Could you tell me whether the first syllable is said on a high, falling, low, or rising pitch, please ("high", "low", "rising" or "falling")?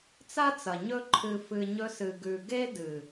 high